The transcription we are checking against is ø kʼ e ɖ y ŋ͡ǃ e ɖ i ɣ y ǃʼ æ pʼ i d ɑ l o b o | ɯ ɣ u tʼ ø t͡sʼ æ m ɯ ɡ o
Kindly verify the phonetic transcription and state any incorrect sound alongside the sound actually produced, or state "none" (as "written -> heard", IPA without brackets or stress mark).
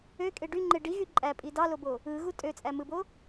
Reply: ɡ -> b